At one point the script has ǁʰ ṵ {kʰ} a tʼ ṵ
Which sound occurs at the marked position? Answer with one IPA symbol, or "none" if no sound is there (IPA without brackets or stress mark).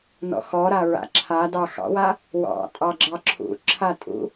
ǁʰ